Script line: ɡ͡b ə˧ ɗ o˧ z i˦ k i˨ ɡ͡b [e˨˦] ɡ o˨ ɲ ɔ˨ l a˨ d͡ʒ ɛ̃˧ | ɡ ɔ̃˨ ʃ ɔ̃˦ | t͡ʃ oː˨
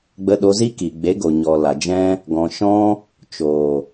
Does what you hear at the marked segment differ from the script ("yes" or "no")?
no